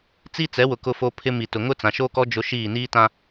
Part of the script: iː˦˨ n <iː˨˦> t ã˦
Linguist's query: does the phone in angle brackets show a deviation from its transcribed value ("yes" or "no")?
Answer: yes